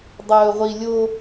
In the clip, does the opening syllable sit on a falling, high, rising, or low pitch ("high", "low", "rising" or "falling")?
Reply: low